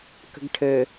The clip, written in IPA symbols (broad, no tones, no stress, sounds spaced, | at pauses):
k ə̤ ɡ ʈʰ ɘ